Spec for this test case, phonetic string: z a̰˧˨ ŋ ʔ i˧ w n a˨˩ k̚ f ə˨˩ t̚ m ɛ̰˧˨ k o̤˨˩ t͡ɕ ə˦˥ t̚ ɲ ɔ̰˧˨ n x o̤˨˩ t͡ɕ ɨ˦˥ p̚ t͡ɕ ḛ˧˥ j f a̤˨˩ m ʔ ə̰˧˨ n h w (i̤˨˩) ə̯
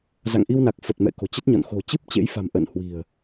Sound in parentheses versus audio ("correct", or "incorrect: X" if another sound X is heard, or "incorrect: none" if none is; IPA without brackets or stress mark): correct